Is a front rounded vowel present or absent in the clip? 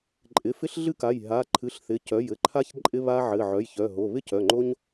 present